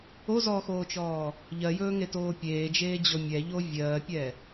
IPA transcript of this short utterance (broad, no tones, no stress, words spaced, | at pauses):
ozɔːxoːt͡ʃɔː | ʎɜjɵːŋetoː pʲeːd͡ʒeːd͡ʑo mʲɛʎo vʲɜːpʲɛ